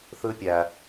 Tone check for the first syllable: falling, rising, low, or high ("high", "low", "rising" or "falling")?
high